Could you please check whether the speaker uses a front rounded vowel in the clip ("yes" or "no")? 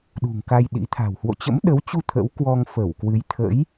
no